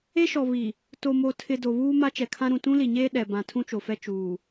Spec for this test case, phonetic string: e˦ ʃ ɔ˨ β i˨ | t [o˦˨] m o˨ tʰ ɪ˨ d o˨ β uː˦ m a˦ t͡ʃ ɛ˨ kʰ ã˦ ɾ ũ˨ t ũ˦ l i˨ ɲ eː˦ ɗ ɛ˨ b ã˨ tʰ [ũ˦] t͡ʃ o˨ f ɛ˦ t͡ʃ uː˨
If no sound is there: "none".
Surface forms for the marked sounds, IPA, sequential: o˨, ũ˦

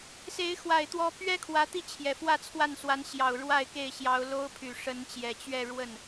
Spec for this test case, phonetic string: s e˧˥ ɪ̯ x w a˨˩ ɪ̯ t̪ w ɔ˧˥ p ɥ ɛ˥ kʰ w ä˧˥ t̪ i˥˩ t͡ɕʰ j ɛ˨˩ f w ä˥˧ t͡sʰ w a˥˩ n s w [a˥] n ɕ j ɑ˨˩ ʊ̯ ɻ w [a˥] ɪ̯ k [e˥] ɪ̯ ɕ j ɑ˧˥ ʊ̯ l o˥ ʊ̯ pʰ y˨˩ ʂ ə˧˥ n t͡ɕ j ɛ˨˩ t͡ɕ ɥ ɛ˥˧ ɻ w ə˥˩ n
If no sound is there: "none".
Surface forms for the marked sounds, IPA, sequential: a˧˥, a˥˧, e˥˩

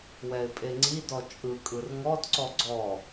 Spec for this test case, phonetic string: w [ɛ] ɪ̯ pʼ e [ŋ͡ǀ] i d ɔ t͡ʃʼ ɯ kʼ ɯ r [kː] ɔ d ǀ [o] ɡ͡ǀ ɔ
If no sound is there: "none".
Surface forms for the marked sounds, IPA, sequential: ɛ, ŋ͡ǀ, ŋ, ɔ

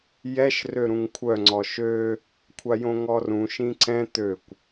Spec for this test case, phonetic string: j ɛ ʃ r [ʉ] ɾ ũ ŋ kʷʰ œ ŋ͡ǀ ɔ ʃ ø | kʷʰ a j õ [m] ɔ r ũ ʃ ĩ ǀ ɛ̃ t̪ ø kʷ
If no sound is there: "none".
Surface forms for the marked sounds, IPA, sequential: ø, ŋ

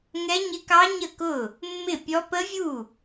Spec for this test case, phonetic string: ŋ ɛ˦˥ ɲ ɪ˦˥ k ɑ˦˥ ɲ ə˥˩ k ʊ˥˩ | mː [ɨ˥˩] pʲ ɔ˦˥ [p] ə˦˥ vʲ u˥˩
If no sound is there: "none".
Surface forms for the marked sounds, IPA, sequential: ɪ˥˩, p

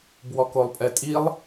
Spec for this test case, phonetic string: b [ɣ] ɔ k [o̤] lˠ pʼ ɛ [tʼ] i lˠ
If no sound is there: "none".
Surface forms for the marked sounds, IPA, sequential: w, o, tʼ

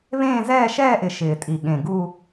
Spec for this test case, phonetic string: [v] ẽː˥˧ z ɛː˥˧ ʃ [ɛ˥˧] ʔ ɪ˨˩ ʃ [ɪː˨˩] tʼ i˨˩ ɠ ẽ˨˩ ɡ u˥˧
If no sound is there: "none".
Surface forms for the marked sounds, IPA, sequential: β, ɛː˥˧, ɪː˨˩

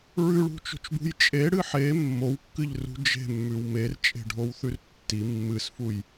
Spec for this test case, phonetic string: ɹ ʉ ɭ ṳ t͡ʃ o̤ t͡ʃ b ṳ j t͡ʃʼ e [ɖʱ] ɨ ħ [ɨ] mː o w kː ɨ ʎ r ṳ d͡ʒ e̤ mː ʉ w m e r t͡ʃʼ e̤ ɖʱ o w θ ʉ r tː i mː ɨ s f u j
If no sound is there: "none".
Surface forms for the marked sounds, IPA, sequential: ɽ, e

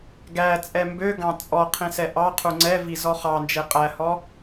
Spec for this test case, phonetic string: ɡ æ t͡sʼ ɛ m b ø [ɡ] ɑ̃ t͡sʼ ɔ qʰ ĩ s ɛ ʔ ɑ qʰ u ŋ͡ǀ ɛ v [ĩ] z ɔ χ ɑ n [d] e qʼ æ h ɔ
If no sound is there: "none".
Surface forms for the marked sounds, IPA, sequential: ɡ, i, d͡ʒ

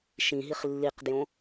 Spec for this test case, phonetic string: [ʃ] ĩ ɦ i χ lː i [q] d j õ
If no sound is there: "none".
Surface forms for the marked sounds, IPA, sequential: ʃ, q

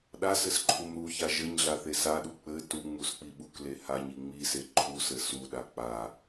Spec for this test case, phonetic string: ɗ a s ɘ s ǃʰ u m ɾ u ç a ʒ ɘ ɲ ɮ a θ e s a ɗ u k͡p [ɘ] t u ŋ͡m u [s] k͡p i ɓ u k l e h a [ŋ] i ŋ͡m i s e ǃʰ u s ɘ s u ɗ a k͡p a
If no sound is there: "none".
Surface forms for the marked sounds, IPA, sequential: ɘ, s, ɲ

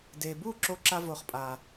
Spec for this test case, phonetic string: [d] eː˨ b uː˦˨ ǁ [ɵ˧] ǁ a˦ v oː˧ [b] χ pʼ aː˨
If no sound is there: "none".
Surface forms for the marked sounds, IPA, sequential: d, o˧, none

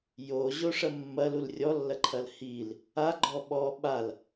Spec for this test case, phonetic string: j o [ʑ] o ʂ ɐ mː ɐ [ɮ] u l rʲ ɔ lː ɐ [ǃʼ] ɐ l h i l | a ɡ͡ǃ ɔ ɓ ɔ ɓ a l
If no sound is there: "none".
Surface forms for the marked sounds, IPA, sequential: ʑ, l, ǃʰ

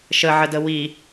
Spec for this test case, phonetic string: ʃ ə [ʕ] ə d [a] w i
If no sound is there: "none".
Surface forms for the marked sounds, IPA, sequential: ʕ, ə

